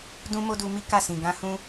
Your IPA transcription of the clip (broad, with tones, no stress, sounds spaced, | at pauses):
d ũ˦ m o˦ d u˧ m i˦ k a˦˨ s ĩ˨ ɡ ã˧ h ũ˧